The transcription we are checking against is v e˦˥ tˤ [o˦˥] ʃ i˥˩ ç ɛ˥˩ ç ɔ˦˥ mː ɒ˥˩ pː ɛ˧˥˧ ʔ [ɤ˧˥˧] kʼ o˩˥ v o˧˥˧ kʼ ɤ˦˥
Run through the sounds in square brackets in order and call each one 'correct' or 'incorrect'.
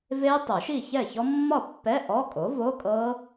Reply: incorrect: o˨˩˦, incorrect: ɔ˧˥˧

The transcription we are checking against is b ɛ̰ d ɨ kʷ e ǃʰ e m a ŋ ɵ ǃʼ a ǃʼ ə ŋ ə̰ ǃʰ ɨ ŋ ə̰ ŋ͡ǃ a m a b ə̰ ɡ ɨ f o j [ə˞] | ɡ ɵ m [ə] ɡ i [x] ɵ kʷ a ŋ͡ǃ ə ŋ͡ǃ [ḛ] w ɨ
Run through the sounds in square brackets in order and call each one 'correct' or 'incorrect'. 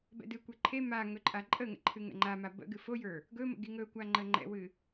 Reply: correct, incorrect: ə̰, incorrect: ŋ, incorrect: ɛ̰

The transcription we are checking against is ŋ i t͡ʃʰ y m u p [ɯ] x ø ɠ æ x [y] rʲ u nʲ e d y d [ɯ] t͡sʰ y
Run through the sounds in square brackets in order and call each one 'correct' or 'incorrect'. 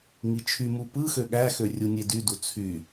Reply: correct, incorrect: ø, incorrect: u

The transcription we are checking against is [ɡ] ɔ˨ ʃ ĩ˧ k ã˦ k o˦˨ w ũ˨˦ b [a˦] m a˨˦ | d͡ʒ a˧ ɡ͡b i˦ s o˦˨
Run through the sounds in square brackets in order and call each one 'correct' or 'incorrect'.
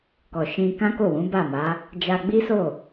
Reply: incorrect: k, incorrect: a˦˨

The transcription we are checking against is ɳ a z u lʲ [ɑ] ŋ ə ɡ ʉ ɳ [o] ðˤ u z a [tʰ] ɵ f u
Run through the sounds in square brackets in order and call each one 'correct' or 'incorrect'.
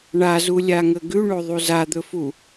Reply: incorrect: a, correct, incorrect: d̪

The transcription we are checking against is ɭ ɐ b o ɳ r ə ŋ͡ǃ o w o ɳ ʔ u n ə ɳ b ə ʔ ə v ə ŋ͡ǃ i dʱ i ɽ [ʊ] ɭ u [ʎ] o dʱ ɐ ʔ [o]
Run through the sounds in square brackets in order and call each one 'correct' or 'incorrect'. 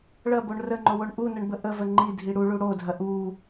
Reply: incorrect: u, incorrect: ɽ, incorrect: u

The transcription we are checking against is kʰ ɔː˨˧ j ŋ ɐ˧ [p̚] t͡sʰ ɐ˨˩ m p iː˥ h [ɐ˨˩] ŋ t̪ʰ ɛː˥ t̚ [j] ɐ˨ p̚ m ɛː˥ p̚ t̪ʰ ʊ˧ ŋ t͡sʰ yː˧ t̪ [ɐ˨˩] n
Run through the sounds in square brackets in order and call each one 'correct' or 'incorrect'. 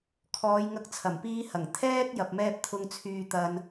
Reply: incorrect: k̚, correct, correct, incorrect: ɐ˧

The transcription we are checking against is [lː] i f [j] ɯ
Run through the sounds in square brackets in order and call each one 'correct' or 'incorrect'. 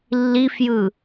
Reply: correct, correct

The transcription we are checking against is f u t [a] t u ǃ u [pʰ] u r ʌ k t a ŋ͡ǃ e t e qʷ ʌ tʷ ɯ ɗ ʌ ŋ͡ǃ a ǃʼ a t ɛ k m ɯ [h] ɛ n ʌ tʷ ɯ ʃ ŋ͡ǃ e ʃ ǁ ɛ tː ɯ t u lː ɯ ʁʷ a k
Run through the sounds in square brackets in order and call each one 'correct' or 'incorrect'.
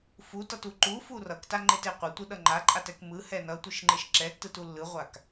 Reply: incorrect: ʌ, incorrect: f, correct

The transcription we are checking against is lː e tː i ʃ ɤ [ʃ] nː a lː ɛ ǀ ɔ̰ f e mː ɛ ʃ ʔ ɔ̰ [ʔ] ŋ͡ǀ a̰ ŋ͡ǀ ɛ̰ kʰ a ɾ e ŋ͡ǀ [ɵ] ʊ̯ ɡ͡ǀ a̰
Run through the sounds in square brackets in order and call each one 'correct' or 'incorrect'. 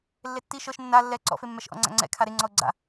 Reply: correct, incorrect: none, incorrect: ɔ

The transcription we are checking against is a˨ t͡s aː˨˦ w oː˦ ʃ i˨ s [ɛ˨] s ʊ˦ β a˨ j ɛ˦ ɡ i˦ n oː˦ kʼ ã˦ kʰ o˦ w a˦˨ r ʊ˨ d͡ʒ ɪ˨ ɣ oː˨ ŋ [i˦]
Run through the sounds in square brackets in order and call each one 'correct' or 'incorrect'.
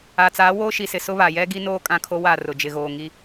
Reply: incorrect: ɪ˨, correct

